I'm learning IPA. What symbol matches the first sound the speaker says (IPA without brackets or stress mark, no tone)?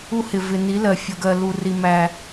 u